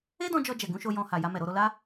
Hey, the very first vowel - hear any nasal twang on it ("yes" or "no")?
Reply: no